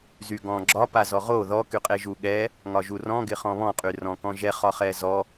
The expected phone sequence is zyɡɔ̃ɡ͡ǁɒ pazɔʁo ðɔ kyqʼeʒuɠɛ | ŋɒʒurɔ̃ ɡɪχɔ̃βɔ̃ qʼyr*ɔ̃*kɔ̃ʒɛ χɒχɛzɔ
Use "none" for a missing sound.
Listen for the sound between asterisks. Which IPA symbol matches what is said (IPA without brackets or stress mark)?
ɔ̃